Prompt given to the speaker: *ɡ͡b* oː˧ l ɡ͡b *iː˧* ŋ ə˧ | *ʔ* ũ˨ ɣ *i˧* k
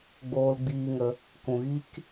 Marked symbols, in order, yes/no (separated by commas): yes, yes, no, no